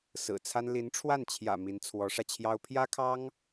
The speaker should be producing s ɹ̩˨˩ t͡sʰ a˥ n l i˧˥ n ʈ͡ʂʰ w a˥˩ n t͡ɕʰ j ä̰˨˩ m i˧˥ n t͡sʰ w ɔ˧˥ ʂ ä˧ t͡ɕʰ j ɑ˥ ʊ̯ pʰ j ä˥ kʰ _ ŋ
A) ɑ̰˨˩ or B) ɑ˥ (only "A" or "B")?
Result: B